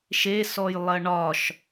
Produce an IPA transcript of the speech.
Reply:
ʃ e s ɔ j lˠ ɐ ɳ ɒ ʃ

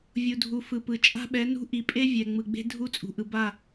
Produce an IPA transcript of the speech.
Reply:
vʲ u˨ dʱ u˨ f ɯ˨ p ɯ˨ t͡ʃʼ a̤˦ ɓ ɛ˨˦ n ṳ˦ ʔ i˨ pʼ e˦ vʲ ɛ˨ ŋ͡m ɯ˨ ɡ͡b e̤˦ dʱ u˦ t͡sʼ ṳ˨ ʔ ɯ˨ b a˦˨

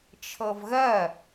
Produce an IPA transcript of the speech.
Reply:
t͡ʃʰ ɤ v ɣ ɜ

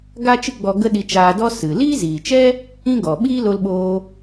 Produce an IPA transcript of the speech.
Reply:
ɡ a˦ t͡ʃ ɨ˦ ɡ͡b ɔ˧ ɡ ə˦ ɗ i˧ t͡ʃ aː˧ d ɔ˦ s ɨ˨ l iː˦ z iː˨ t͡ʃ ɛ˦ | ĩ˦ ɡ ɔ˨ ɓ iː˦ l o˧ l ɓ oː˧

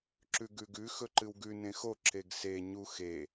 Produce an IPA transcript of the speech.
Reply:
ǁ ʉ ɡ ʉ ɡ ʉ x ɵ ǃ ɨ w ɡ ʉ n ẽ x o ǁ e ɡ s e ɲ u x e

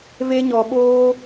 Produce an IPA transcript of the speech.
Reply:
v e˦ ɲ ɔ˧ ɓ oː˦

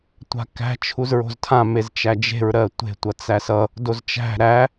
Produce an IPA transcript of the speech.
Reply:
tʷ a̤ k æ̤ t͡ʃʰ u z ɹ o̤ z tʰ ã m e z t͡ʃ æ d͡ʒ e̤ ɹ ɾ ɜ tʷ e̤ tʷ ʌ t͡s æ s ʌ | d o z t͡ʃ æ̤ ɾ æ

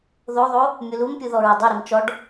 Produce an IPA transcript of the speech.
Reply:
ð o ðˤ o | mʲ u l u m pʲ u ð ɔ ɹ o dˤ o ɾ i m t͡ʃ ɔ ɖ

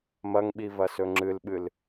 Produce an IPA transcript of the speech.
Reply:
m ɐ ŋ ɓ i v ɐ s ɵ ŋ͡ǁ ɨ l ɓ ɨ l

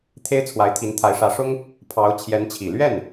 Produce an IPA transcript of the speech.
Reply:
t̪ʰ e˥ ɪ̯ t͡sʰ w a˧˥ ɪ̯ t̪ʰ i˧˥ n t̪ʰ a˧˥ ɪ̯ ʂ ä˧˥ ʂ ʊ˥ ŋ | pʰ ɑ˧˥ ʊ̯ t͡ɕʰ j ɛ˧˥ n t͡ɕʰ i˨˩ l ɥ ɛ˥˩ n

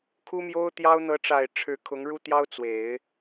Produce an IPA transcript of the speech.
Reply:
kʰ u˥ m j o˥ ʊ̯ t̪ j ɑ˥ ʊ̯ n̪ ɤ˧˥ ʈ͡ʂ a˨˩ ɪ̯ ʈ͡ʂʰ ɻ̩˧˥ kʰ ʊ˧˥ ŋ ɻ u˥ t̪ j ɑ˥ ʊ̯ t͡s w e˨˩˦ ɪ̯

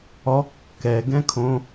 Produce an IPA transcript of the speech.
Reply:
ɔ kː ɛ ɡ ɛ̃ kʰ õ

